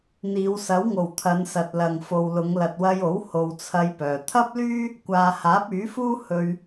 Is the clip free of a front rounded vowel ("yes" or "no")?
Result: no